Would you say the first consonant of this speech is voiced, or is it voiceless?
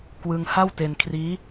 voiceless